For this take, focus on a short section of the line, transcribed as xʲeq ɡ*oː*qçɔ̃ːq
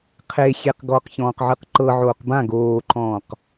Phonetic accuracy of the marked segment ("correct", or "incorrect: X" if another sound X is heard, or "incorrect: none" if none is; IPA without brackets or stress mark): incorrect: ɔː